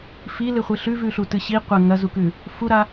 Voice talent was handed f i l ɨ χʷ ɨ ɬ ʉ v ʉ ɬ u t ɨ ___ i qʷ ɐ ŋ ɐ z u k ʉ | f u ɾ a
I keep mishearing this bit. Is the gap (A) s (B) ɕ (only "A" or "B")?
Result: B